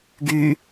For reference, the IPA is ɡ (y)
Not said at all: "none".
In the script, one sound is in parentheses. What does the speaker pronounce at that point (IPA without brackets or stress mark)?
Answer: y